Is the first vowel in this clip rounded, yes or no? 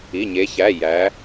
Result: no